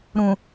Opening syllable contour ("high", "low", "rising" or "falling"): low